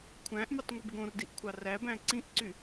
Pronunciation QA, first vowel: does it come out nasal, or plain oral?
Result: nasal